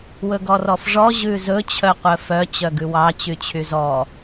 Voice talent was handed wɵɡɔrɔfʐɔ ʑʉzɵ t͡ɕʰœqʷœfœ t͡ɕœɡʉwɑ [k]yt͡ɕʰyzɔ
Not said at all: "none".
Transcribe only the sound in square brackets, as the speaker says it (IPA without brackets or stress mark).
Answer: t͡ɕ